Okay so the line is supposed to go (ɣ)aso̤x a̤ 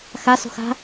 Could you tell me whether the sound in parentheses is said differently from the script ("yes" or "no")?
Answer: yes